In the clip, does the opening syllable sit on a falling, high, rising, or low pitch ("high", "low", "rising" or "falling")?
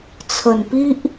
low